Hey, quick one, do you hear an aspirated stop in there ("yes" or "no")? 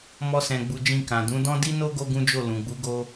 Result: no